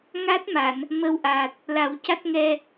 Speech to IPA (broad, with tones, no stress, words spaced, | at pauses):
ŋa˦˥t̚ma˨˩˨n | mə˧wʔa˨˩t̚ | la˨˩˦wca˦˥t̚ŋɛ˧